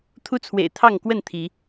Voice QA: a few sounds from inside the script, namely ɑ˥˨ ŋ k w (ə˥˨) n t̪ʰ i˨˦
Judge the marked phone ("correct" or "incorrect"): correct